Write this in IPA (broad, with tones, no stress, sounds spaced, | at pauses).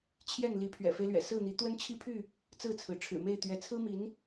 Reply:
t͡ɕʰ j ɛ˥˨ n l i˨˦ pʰ ɥ ɛ̰˨˩ f e˦ ɪ̯ l ɥ ɛ̰˨˩ s ɹ̩˥˨ n̪ i˨˦ t̪ w ə˦ n t͡ɕʰ i˥˨ pʰ y˥˨ | t͡s ɹ̩˥˨ t͡sʰ ɹ̩˩ ʈ͡ʂʰ ɻ̩˨˩ m e˥˨ ɪ̯ t̪ ɥ ɛ˨˦ t͡sʰ ɹ̩˦ m i˨˦ n